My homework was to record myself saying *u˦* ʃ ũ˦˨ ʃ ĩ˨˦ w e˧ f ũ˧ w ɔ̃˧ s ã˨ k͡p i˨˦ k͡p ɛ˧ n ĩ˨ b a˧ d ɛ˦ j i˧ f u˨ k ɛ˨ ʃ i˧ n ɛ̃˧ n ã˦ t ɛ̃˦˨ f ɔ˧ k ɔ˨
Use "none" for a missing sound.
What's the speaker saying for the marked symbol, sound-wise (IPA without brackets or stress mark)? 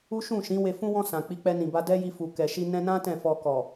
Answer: u˦